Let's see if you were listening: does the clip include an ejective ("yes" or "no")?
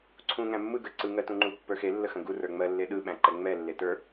no